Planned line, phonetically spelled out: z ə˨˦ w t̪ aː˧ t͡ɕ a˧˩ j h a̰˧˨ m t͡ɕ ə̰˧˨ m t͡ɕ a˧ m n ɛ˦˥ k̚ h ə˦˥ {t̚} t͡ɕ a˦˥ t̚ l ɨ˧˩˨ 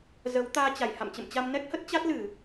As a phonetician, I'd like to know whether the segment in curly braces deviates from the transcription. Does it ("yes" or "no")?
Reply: no